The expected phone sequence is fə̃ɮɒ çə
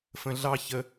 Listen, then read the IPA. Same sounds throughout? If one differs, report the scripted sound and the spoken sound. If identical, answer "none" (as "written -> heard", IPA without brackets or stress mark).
ɒ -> ɑ